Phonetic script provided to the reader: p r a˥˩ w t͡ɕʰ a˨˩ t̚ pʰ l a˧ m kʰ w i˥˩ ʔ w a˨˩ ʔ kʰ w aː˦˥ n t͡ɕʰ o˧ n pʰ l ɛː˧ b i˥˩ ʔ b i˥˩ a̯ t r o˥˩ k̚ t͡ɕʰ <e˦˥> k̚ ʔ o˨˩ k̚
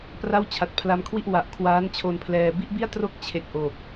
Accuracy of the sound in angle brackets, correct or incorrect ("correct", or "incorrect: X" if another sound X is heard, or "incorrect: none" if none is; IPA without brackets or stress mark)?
incorrect: e˨˩